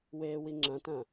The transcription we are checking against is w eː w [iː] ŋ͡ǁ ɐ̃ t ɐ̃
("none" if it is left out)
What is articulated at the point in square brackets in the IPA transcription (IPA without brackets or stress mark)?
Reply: i